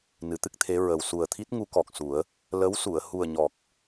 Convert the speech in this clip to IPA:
n ɨ˨˩˦ t̪ ɨ˦˥ k̚ t̪ʰ e˧˥ ɹ ə˨˩ w s u˨˩ ə̯ t̪ʰ i˦˥ t̚ ŋ u˧˥ k ɔ˨˩ k̚ s u˨˩˦ ə̯ | l ə˧˥ w s u˨˩˨ ə̯ h u˨˩ ə̯ ɲ ɔ˨˩ k̚

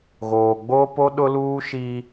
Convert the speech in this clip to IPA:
ɣ oː˨ ɡ͡b oː˦ p o˦ ɗ ʊ˦ l uː˦ ʃ i˦

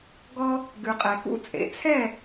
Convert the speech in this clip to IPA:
ɡ ɔ˦ | ɡ ʉ˨ qʼ ɛ˨ k ṵ˦ t͡sʼ ḛ˨ t͡sʰ ɛ˥˨

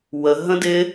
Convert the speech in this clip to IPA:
w ə ɦ ə̃ d ɪ

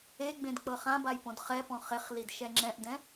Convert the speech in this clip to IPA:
e ɡ͡b ẽ d k͡p ɤ χ ã b a j p õ d χ ɛ p ɔ̃ χ e χ l i d ʃ ɛ ŋ͡ǁ ɛ̃ ʔ d ɛ̃

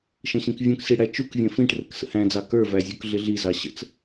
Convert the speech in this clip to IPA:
ʃ ə̃ ɕ ĩ k vʲ ũ k s i ɽ æ t͡ʃ u k vʲ ɛ̃ f ĩ ʈ r ə k s ə̰ h æ̃ d͡z ɑ k ə˞ v æ zʲ u k ɮ ɪ ɮ i z ɑ ɕ ə̰ t͡s

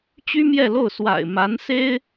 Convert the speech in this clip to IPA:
t͡ɕ y˥ m j ɛ˥˧ l o˥˩ ʊ̯ s w a̰˨˩ ɪ̯ m a˧˥ n s e˥ ɪ̯

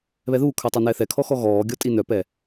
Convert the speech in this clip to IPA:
β ɛ ð uː kʰ ə˞ tˤ œ n ɛ θ ɛ kʰ ɔ x ɔ ɣ ɔː ɡʲ ɔ tʼ i n œ p ɛ

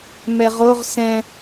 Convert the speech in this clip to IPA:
m ɛ ʁ o ʁ s ɛ̃

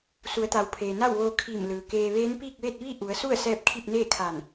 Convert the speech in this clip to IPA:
s u˩˧ ə̯ t̪ a˩ w pʰ eː˩ n a˥˨ w ʋ oː˧ kʰ i˧˩ m l ɯː˩ k eː˧ ʋ eː˧˥ n p iː˥˨ k̚ ʋ e˥˨ t̚ ʋ i˥˨ ʔ u˩˧ ə̯ s u˥˨ ə̯ s ɛː˧ p̚ kʰ i˥˨ p̚ n eː˥˨ kʰ aː˧˩ n

